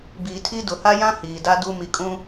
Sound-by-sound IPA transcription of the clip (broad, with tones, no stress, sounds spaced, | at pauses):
b iː˨ tʰ i˦ d ʊ˨ h a˦ j ã˦ h iː˨ d a˦ d u˦ m i˨ kʼ ũ˦